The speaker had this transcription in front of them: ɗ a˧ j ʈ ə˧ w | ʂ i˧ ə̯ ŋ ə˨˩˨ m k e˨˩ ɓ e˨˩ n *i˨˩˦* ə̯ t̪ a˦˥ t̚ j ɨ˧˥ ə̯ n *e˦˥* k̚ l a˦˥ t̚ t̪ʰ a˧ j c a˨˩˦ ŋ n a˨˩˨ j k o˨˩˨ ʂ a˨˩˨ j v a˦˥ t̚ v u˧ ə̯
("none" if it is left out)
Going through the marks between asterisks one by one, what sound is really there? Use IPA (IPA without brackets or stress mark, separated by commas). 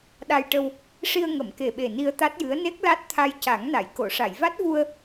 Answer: i˧, e˦˥